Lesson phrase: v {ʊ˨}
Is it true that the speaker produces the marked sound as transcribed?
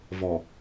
no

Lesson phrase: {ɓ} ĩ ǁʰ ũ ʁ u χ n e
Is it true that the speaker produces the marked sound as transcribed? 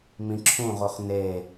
no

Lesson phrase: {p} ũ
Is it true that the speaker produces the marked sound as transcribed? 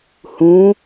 no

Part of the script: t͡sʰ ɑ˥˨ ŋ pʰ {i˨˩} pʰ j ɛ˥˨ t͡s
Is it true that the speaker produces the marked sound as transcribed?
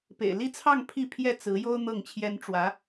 no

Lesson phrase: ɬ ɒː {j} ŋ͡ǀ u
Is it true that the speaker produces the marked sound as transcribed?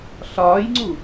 yes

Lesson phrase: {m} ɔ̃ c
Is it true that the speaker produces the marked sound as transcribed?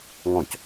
no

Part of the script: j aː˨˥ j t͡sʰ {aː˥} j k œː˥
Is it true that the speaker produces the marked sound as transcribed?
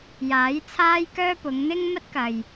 yes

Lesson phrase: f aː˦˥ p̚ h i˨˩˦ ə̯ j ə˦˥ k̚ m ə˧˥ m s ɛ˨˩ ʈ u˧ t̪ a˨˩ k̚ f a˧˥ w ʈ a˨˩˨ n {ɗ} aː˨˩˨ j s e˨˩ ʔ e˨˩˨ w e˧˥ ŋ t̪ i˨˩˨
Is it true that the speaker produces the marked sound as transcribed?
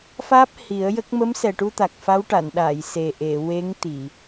yes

